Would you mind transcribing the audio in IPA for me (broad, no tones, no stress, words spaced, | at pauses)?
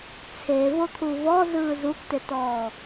t͡sʰe vot̪ʰuvɔ zɯːzuktetɔː